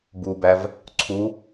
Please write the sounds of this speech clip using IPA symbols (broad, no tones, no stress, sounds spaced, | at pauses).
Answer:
b u b æ v | ǀʰ u